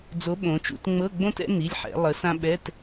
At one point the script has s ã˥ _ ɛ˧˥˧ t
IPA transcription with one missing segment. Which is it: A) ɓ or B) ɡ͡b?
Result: A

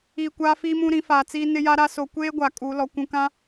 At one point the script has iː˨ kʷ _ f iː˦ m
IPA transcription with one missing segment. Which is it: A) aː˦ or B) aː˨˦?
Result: A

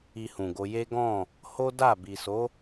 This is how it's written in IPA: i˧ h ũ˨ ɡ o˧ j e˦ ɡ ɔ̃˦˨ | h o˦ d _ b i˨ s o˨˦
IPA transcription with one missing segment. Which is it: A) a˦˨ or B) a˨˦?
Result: A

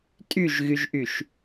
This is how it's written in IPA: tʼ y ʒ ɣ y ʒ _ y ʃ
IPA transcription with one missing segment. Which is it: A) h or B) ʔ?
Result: B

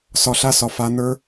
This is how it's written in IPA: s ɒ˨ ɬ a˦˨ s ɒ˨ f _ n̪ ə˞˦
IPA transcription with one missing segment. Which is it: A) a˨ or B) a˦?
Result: A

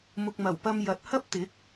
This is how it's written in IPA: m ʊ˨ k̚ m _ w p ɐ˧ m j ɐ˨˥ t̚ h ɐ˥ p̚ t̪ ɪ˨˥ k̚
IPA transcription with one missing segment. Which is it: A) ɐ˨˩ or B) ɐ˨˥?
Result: A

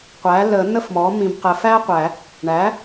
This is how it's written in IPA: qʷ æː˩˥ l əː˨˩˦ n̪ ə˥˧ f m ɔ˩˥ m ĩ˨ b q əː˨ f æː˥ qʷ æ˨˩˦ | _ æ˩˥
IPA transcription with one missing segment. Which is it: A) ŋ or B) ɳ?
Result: B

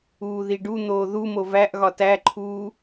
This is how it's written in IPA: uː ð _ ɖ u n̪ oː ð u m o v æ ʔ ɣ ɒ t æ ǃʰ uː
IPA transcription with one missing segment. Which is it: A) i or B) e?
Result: A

